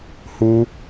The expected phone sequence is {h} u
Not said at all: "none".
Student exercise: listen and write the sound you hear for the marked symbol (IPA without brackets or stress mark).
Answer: h